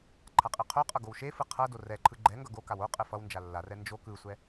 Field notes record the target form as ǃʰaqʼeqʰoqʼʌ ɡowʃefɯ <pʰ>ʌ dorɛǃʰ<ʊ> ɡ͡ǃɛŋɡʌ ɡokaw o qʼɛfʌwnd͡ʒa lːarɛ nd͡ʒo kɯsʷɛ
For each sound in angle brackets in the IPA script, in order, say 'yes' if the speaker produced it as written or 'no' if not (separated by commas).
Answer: no, no